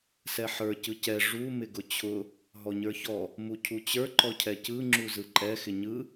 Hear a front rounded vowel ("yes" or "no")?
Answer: no